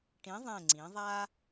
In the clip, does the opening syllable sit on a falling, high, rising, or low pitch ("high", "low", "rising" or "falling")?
rising